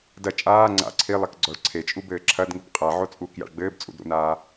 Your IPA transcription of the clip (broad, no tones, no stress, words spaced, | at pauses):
dɐ t͡ʃʼaː ŋ͡ǀa̰ ǀʰilˠɛk ɡ͡ǀɔɭǀʰet͡ʃʼu bɘːǁʰɐdŋɨb qʼaʕo t͡sʼuːkja̰ɭɡ͡bɘːb t͡sʼṵdɾṵnaː